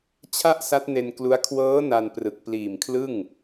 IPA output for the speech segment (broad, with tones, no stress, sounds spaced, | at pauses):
t͡ɕʰ a˥˩ ʔ s a˦˥ t̚ n e˧ n k l u˦˥ a̯ kʰ w ɤː˦˥ n a˧ n p r ɯ˨˩ k̚ p l iː˨˩ m kʰ l ɯ˥˩ ŋ